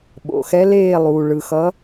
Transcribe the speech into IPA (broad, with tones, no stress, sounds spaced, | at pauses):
ɓ o̰˩ x ɛ˨˦ l eː˦˨ lˠ uː˩ ɭ ɯ˩ x ʌ˨˦